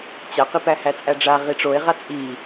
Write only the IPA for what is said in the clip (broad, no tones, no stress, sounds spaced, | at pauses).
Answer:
t͡ɕ a q i p æ h æ t͡sʼ æ ɖ͡ʐ a ʁ i ʈ͡ʂ o e̯ ʁ a t͡sʼ i